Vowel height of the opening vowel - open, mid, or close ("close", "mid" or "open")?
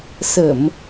mid